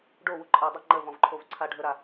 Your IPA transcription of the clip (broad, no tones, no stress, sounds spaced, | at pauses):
ɖ o w u ǃʼ ə i̯ dˤ ə ŋ͡ǃ ə v ɔ̃ v ǃʰ o v ǀʰ a ɖʱ ə ɾ a